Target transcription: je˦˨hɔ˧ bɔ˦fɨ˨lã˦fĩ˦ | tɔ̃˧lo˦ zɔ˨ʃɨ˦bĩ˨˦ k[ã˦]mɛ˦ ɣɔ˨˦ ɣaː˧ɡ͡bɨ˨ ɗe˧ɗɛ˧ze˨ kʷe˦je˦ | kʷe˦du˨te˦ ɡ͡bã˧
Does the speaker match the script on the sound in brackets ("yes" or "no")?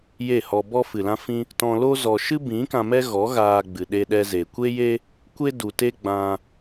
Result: no